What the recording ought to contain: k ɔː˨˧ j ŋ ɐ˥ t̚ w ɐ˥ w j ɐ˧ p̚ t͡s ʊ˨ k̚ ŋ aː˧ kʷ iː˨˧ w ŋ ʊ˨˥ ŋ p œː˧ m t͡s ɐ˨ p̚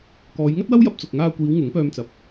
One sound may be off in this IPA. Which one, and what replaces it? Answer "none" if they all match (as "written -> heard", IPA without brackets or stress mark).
none